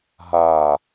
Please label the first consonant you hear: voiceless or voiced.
voiced